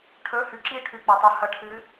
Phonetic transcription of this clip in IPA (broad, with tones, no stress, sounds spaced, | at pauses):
ʈʰ ɵ˧˥˧ h ʉ˨ ǁ i˥˨ ʈʰ ʉ˨ k͡p ɐ˨ tˤ u˨ h ɐ˨˦ ʈʰ ɨ˨˦